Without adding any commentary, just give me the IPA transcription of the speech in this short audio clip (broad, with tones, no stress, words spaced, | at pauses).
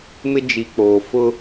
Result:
mɪ˦ d͡ʒi˨k͡poː˨ fʊ˦